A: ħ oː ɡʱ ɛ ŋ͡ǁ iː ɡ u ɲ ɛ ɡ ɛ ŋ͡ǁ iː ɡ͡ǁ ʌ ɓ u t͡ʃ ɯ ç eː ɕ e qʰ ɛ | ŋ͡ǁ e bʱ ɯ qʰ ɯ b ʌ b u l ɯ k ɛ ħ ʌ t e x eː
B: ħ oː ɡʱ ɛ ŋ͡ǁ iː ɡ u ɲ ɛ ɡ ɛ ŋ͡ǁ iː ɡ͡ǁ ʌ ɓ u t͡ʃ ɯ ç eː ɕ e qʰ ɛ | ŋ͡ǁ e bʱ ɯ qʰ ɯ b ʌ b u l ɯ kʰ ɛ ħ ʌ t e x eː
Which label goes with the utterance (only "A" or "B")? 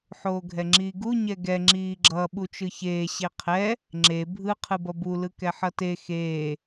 A